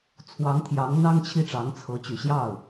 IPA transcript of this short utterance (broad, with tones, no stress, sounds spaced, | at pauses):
t͡sʰ w ɑ˧˥ ŋ t̪ʰ j ɑ˧˥ ŋ n̪ ɑ˥ ŋ t͡ɕʰ i˥˩ ʈ͡ʂ ɑ˧˥ ŋ t͡sʰ ɤ˧˥ t͡ɕ y˨˩ ɕ j ɑ˥˩ ʊ̯